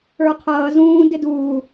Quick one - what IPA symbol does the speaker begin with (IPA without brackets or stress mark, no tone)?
ə˞